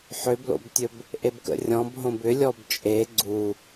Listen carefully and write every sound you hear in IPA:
ħ ʏ b l o̰ b tʲ ɵ b | ʔ e b k ə̰ rʲ ɔ̃ b ɦ õ b ʏ lʲ ɔ b t͡ʃʼ e ɡ͡ǀ u

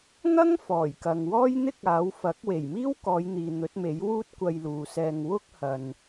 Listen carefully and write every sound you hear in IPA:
ŋ ɐ˥ ŋ f ɔː˨˩ j k ɐ˨ ŋ w ɔː˥ j n̪ ɪ˥ k̚ aː˨˧ w f ɐ˨˥ k̚ w e˨˩ j m iː˥ w k ɔː˨˧ j n̪ iː˨ n̪ ɵ˨˥ t̚ m e˨˥ j w uː˥ t̚ kʷ ɐ˧ j l uː˨ s ɛː˧ ŋ w ʊ˥ k̚ h ɐ˨ n

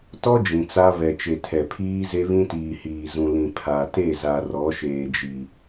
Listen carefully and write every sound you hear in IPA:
t ɔ˦ d͡ʒ ĩ˨ t͡s a˦ β ɛ˨ t͡ʃ e˨ tʰ ɛ˨ pʰ iː˦ z e˦ β ĩ˦ t iː˨ h iː˨ z ũ˨ l ĩ˨ pʰ a˨ t e˦˨ z a˨ r ɔ˨˦ ʃ eː˨ d͡ʒ i˨

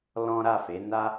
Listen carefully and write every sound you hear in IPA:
l ɔ̃˦ ɾ a˦˨ f e˨˦ n a˧

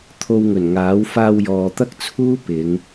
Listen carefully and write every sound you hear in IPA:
t̪ʰ o˧ w ŋ ɵ˨˩ n ŋ aː˨˥ w f aː˧ w j ɔː˨ t̪ ɐ˥ k̚ t͡sʰ uː˥ p ɪ˨˧ ŋ

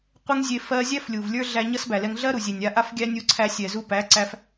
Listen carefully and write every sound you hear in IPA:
qʷ e˦ ŋ zʲ e˧ f ɜ˧ zʲ æ˦ f lʲ u˨ v lʲ ə˞˧ ɮ æ˧ ɲ ʌ˦ s b æ˨ l ɛ˧ ŋ ɮ ɜ˦ ɾ u˨ zʲ e˨ nʲ a˧ ʔ a˧ f ɡʲ æ˧ nʲ u˧ ǀʰ æ˧ sʲ ɛ˨ z u˧ p æ˨˦ ǀ æ˧ f

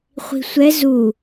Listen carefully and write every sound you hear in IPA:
χʷ i̤ sʷ ɛ z u

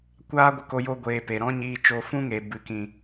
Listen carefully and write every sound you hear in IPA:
kʷ aː˦ ɡʷ ə˧ k o˧ j o˧ ɡʷ eː˨ p e˨ ɾ ɔ̃˦ ɲ iː˧ t͡ʃ o˧ f ũ˦ ŋ e˨ b ɨ˨ k ĩ˨

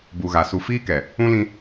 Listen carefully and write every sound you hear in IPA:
b u˨ ɣ a˨ s u˨ f iː˦ k ɛ˨ | ũ˦ l ĩ˦

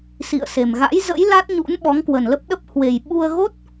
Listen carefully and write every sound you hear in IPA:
s ḭ˧˨ ə̯ s e˨˩ m ɣ a̰˧˥ j z ə̰˧˥ j l a˦˥ t̚ ɲ ṵ˧˥ n ɓ ɔ˨˦ ŋ k w ə˨˩ n l ə˦˥ p̚ ɗ ə˦˥ p̚ h w e˨˩ j ɓ u˧ ə̯ ɣ o˦˥ t̚

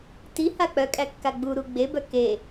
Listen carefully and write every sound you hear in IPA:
t i h a k͡p œ kʼ æ kː a ɡ͡b u ɾ u ɡ͡b e b œ k e

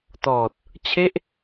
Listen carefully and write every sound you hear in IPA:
t ɔː˨˩ t̚ | t͡ɕʰ e˥˩ ʔ

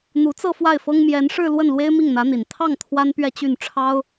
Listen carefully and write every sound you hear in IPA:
n̪ u˧˥ t͡s ɤ˥˧ f w a˥˩ ɪ̯ f ɤ˥ ŋ m j ɛ˧˥ n ʂ ɻ̩˥˧ l w ə˥˩ n l w e˥ ɪ̯ m i˥˩ ŋ n̪ ä˧˥ n̪ i˨˩ n t̪ʰ ɑ˥˩ ŋ t̪ʰ w a˥ n p ɥ ɛ˥˧ t͡ɕ y˥˩ n ʈ͡ʂʰ ɑ˥ ʊ̯

